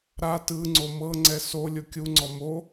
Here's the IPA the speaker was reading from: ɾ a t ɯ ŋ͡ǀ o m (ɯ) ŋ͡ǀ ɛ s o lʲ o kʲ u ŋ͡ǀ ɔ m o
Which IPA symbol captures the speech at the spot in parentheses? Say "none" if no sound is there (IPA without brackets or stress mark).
ɤ